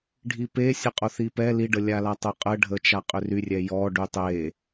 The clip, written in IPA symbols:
ɖʱ i p e sʲ ə qʼ o θ i p ɛ l i ɖ ə lʲ a l a tˤ o qʼ ə ɖʱ ə t͡ʃ a qʼ ʏ r y rʲ ɛ j ɔ ɖ y tˤ e

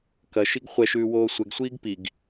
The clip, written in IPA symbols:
k ɐ ʃ i ɡ χʷ ɛ ʃ ʉː w oː sʷ ɛ ɡ sʷ iː ɡ p i ɡ

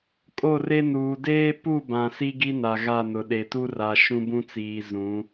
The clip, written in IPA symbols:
kʼ o˦˨ r e˦ n uː˨ d eː˦ p u˦˨ b ã˨ s i˦ ɡ i˦ n a˨ ɣ a˦˨ n ʊ˨ ɗ e˨ t u˦ r a˨ ʃ ũ˦ b ũ˦ t͡s iː˨ z ũ˨˦

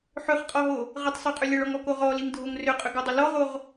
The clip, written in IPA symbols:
ħ ʏ χ qʼ ɔ ɦ o | ʁ ə tˤ sˤ o qʼ ʏ lʲ ə ɭ ɔ ŋ ɔ k o ʁ ɔ l i ŋ dʱ o ŋ r ʏ qʼ ʏ ɡ ɔ dˤ ʏ l ɔ ʁ o ʁ

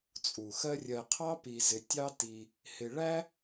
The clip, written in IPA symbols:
t͡sʼ u˩ x ɜ˦ rʲ ɜ˨ qʰ ɑ˥ p i˨ z ɪ˨ tʲ ɑ˥ t i˨ | h ɪ˨ ɭ æ˥

